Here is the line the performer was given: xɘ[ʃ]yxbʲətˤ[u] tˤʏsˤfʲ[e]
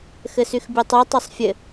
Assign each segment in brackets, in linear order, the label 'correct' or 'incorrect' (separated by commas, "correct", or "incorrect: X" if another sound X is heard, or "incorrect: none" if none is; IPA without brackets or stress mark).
incorrect: s, incorrect: y, incorrect: ɘ